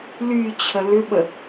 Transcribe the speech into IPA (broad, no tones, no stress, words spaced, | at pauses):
lyt͡ɕʰə lʏɓə